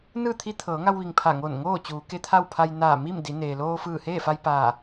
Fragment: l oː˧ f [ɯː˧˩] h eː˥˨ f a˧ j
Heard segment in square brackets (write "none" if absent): ɯː˧˩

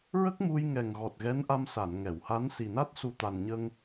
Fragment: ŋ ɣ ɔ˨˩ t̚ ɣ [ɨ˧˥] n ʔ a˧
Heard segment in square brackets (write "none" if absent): ɛ˧˥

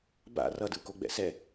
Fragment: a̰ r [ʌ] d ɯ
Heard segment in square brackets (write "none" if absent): ʌ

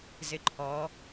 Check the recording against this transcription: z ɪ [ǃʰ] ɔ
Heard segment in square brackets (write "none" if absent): ǃʰ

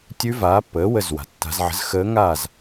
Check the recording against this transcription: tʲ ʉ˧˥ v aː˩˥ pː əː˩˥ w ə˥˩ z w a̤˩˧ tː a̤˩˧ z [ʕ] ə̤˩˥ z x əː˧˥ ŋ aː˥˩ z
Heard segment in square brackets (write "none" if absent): ʕ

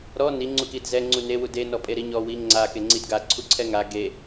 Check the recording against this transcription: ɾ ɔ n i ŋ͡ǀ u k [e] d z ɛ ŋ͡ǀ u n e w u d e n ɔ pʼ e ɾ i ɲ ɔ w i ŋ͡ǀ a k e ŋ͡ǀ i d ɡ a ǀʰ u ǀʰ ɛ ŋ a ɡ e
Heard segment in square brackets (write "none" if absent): i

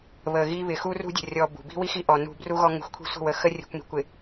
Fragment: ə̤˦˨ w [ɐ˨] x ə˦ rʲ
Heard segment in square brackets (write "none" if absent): ə˨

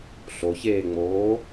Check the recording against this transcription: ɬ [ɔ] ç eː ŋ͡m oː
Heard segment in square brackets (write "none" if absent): o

